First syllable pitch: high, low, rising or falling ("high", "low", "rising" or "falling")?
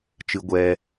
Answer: high